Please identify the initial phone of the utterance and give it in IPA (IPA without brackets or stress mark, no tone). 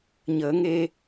ɲ